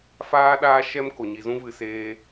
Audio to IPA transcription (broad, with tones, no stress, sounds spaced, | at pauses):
f aː˦ ɗ aː˦ ʃ ɛ˦ m k o˨ ɲ i˨ z ũ˧ v ɨ˨ s eː˧